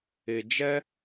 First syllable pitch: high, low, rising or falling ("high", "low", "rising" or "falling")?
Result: low